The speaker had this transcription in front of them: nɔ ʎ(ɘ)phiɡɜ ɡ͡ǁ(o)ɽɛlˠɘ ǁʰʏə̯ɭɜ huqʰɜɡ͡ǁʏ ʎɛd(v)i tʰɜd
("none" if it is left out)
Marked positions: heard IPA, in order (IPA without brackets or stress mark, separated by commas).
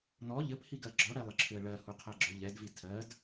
ɘ, ɔ, v